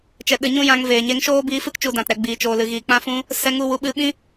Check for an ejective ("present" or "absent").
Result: absent